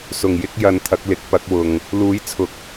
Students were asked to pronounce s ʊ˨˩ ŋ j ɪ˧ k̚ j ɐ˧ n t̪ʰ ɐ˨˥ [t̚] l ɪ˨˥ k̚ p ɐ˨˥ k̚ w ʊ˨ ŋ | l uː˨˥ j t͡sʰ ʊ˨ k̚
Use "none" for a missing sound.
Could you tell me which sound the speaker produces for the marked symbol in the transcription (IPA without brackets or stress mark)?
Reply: k̚